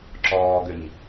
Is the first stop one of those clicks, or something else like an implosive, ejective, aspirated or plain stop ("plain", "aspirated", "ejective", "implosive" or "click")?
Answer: click